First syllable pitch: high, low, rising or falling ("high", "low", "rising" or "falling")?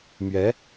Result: rising